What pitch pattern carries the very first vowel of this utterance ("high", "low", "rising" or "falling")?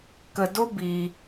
low